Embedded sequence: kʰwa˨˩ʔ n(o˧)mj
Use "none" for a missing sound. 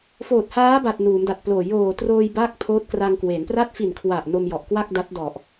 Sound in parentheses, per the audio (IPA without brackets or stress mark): o˧